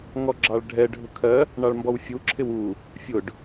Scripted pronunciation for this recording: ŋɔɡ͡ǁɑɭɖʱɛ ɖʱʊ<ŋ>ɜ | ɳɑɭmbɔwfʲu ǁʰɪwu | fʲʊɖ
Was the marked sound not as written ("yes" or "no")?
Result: yes